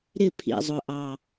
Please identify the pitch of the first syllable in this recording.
falling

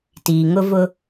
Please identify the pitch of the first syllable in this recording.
low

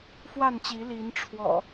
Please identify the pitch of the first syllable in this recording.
falling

